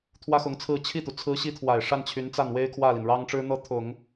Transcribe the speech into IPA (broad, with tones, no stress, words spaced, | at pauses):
t̪ʰwä˥xʊ˧˥ŋt͡sʰɹ̩˥˧ t͡ɕʰi˥˩t̪u˩ t͡sʰɹ̩˧˥ɕi˧˥t̪ʰwa˨˩ɪ̯ ʂa˥˩nt͡ɕʰy˧˥nt͡sa˥˩nwe˥ɪ̯ kʰwä˥˩li˩nɻɑ˥ŋʈ͡ʂɻ̩˥ n̪ɤ˥˩t̪ʰʊ˨˩˦ŋ